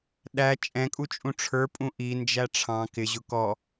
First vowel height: low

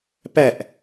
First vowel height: low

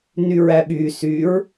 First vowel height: high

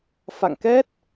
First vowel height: low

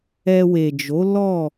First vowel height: mid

